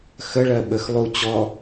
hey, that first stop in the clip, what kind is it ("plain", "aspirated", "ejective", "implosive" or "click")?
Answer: implosive